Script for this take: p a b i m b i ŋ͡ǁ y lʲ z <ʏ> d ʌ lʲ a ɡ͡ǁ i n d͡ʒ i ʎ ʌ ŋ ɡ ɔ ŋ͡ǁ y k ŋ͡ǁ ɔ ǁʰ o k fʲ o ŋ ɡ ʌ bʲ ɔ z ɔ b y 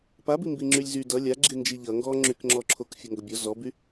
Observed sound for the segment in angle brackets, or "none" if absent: y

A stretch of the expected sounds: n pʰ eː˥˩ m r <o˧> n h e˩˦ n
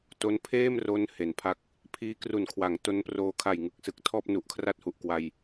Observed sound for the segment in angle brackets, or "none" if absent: o˦˥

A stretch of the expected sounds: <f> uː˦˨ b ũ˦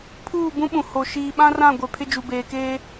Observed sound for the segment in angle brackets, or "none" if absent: pʰ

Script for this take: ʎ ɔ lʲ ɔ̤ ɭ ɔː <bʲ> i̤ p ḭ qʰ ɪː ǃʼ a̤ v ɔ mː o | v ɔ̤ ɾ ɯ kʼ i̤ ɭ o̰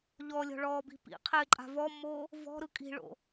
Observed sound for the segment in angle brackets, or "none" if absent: b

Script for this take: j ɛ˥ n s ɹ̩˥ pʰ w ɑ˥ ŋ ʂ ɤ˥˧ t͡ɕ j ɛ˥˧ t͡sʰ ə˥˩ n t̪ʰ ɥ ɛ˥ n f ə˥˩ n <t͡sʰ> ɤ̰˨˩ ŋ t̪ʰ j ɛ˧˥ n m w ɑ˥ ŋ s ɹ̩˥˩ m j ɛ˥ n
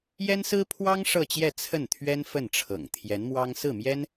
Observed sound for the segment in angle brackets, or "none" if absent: ʈ͡ʂʰ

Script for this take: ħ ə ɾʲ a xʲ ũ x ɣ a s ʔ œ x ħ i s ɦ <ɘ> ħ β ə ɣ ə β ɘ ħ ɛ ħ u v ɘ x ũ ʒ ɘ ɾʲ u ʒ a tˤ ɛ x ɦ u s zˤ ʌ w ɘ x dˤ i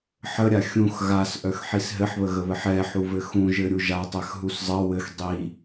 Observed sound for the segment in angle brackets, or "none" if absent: ɘ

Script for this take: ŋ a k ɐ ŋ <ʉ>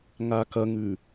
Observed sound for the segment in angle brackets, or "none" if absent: ʉ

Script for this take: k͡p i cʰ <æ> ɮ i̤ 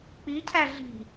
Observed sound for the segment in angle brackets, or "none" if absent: æ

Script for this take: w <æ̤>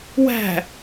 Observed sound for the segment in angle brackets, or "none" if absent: æ̤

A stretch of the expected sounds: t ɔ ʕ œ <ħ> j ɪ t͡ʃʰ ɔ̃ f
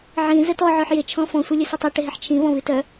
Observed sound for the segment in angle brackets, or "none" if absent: ħ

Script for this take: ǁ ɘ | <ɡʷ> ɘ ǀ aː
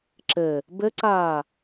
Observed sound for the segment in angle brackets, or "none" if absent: b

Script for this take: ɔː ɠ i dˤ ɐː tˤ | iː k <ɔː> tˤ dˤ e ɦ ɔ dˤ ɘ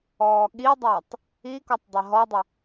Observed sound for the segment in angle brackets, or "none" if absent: ɔ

